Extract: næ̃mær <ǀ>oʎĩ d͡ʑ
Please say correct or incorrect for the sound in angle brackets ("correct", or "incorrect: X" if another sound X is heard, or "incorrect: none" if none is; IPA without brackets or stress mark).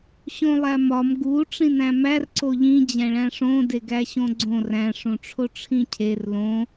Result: correct